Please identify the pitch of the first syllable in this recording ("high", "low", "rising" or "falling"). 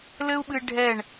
high